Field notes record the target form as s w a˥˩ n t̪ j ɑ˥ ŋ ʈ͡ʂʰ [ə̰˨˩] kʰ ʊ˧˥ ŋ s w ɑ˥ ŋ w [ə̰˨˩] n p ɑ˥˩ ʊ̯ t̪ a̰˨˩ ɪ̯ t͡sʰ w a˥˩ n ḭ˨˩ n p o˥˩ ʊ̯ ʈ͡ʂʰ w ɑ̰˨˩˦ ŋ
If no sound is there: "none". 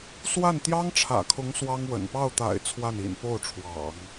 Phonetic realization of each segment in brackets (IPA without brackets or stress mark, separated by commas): ä̰˨˩, ə̰˨˩